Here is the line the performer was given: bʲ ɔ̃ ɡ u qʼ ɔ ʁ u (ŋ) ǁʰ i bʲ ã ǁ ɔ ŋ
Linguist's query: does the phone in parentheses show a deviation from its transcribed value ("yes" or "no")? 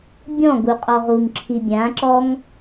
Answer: no